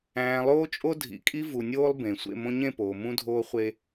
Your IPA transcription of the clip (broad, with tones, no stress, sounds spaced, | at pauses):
æ̃ː˨ lˠ oː˦ t͡ʃʼ o˦ dʱ ḭ˨ kʼ i˦ v u˨ nʲ oː˦ lˠ b ẽ˨ sʷ ḛ˦˨ m õ˦ ɲ ẽ˦˨ p oː˨ m ũ˦ dʱ oː˦ χʷ e˦